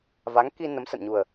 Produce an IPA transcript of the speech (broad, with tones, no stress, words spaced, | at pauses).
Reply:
va˨˦ŋki˧ nə˨˦msə̰˧˨nɲu˨˩ə̯